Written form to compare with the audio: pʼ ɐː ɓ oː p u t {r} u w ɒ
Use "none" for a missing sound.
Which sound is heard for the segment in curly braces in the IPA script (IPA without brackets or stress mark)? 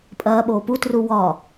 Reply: r